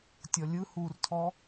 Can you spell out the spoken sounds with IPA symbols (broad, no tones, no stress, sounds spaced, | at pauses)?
tʲ ɔ lʲ ɯ h u r tʰ ɔ